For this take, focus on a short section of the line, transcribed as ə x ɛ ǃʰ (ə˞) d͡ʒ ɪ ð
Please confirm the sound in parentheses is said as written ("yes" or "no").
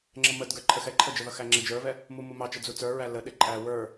no